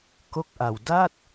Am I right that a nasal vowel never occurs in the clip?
yes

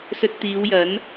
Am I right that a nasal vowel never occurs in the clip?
yes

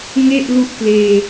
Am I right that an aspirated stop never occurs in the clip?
yes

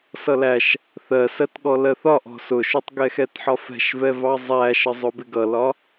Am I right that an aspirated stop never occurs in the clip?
yes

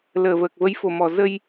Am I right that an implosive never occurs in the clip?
yes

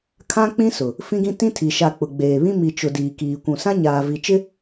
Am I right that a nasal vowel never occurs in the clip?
no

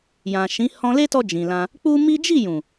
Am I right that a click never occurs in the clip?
yes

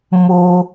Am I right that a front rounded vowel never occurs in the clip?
yes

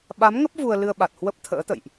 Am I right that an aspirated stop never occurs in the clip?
no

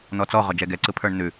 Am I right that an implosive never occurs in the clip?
yes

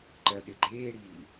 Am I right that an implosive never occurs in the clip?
no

